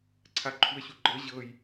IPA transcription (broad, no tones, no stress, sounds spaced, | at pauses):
ǀʰ a ǃʰ u ə̯ ɕ u ɡ͡ǃ ɤ ʑ ɤ j